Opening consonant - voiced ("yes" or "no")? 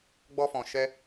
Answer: yes